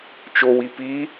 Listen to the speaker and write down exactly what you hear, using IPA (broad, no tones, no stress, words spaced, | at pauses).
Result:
t͡ʃowi pi